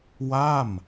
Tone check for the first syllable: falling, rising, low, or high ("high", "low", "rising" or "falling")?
falling